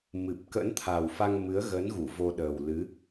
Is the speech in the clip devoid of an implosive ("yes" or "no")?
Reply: no